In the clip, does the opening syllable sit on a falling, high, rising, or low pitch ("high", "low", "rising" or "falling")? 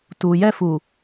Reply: low